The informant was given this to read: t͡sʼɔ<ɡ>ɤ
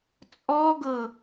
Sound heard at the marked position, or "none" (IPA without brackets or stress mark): ɡ